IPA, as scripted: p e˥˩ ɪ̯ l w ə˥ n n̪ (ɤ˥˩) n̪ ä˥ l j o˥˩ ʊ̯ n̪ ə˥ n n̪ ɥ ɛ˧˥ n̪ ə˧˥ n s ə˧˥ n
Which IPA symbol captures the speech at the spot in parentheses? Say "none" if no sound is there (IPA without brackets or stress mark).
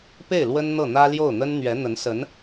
ɤ˥˩